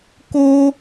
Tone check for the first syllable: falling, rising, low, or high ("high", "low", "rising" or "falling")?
high